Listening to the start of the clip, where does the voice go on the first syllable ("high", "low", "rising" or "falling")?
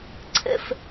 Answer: low